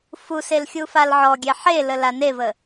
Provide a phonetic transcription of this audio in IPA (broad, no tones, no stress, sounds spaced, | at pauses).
f u s e l xʲ u f a l ʕ ɔ ɡʲ ɛ ħ e l ə l a n e v ə